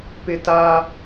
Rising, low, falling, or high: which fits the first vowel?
high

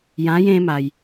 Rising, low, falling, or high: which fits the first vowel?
rising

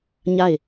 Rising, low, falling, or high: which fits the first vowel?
falling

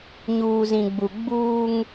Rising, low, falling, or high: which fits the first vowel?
low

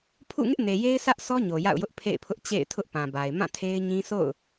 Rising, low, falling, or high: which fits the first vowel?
falling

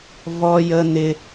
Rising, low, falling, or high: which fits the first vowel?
high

